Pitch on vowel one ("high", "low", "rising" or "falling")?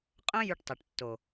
high